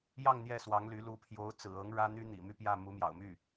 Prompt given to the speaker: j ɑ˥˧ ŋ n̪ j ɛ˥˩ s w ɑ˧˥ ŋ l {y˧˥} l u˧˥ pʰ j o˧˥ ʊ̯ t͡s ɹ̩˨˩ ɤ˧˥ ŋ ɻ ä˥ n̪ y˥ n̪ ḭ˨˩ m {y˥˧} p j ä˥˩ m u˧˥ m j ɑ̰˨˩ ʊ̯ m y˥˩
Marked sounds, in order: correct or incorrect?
correct, correct

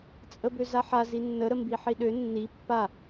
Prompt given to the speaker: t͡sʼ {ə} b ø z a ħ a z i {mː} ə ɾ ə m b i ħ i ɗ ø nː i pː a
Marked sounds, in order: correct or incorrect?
correct, incorrect: nː

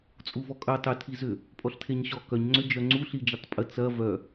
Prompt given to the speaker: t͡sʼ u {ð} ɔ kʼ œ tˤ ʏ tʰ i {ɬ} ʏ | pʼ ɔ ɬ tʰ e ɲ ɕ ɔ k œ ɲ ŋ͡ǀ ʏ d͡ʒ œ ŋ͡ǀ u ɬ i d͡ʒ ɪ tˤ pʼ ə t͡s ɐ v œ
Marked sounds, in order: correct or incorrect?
incorrect: v, incorrect: z

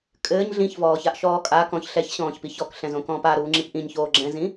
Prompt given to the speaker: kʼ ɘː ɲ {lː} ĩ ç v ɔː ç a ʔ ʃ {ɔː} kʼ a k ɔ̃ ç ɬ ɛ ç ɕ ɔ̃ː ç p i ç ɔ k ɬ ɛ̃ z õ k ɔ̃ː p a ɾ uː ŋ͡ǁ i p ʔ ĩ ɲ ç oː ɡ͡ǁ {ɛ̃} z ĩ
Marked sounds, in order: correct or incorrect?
incorrect: ɮ, correct, correct

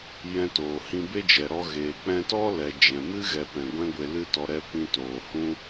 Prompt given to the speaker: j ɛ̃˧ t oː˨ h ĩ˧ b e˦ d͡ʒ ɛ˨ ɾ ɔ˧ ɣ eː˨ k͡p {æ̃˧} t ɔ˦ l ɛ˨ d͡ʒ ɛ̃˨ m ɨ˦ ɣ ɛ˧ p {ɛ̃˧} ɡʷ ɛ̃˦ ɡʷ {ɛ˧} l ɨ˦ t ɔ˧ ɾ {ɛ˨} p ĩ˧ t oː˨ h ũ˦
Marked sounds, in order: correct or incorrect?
incorrect: ɛ̃˧, incorrect: ɛ̃˨, incorrect: e˧, incorrect: ɛ˧

